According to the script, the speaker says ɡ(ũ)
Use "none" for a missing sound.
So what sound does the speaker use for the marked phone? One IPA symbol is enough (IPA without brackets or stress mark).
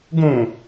ũ